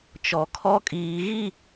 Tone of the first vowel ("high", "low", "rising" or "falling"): low